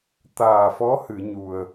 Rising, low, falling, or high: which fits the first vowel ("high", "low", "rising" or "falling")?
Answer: low